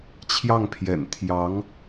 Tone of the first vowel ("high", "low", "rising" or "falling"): falling